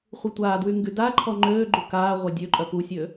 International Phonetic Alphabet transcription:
χʷ i tʷ aː d w y ŋ ɡ y d a ǃʰ ɔ ŋ͡ǃ øː ɡ͡ǃ u k aː ʁʷ a dʲ ø ǃʼ œ p u sʲ ø

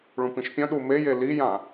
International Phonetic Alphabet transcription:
ɭ ũ p ĩ ʃ pʲ œ̃ ɗ u m e j e l i j ã

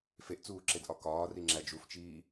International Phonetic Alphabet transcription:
f e ʔ t͡s uː ǁ e d ʔ ɒ k ɒː r i ŋ͡ǁ æ d͡ʒ u f t͡ʃ iː

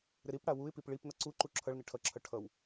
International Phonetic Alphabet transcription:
ɾ ɪ ɾ i p ɽ a w u ɪ̯ p i p ɭ i p n ʌ ǀ u ǃ u ǁʰ ʌ ɭ n ɪ ʈʰ ʌ ǁʰ ʌ ʈʰ ʌ w

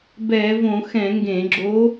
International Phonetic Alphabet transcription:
b ɛː˧˩˧ v õ˧˩˧ x ɛ̃˧˩˧ ŋ ɡ ẽ˧˩˧ ɡ͡ǁ o˧˥

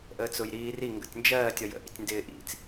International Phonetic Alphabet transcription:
ʔ əː t͡s ʊ j ɾ iː r i ŋ ɡ ə̰ tʲ n d͡ʒ ɜː tʲ ɒ j ə̰ ʔ ḭ tʲ n d ɪː ʔ ḭ t͡s

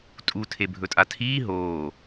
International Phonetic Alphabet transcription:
tʼ u tʰ e bʱ ɵ tʼ a tʰ iː ɦ oː

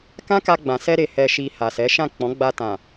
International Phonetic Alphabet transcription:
k ã˦ k a˧ ɡ͡b ã˨ s ɛ˧ ɾ e˨ h ɛ˨ ʃ i˨ h a˨ s ɛ˨˦ ʃ ã˦˨ k͡p ɔ̃˨˦ ɡ͡b a˧ t ã˨

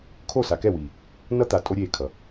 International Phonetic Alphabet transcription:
kʰ o˦˨ s a˨ k ɛ˦˨ w iː˨ | n ʌ˦ t̪ a˨ tʼ o˦ ɾʲ eː˦˨ kʰ ʌ˨

